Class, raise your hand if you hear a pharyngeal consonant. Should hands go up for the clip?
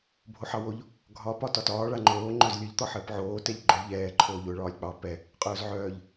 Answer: yes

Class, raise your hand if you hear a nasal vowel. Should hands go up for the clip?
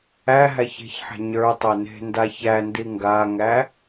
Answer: no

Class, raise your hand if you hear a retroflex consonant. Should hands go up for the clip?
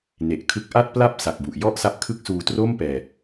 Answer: no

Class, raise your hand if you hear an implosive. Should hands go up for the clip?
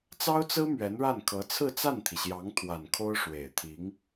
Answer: no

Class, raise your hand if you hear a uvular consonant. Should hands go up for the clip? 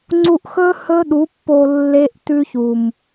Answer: no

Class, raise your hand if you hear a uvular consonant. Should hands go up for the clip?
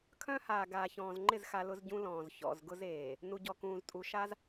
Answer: no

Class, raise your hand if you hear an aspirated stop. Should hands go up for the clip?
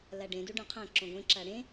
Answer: yes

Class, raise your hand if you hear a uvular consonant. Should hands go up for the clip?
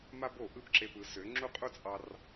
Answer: yes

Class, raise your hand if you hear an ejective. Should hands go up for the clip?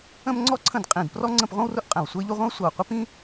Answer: yes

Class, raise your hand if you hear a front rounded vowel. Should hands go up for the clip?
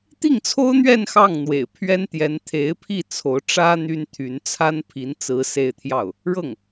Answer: yes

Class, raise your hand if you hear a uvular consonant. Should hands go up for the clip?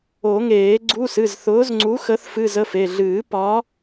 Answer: no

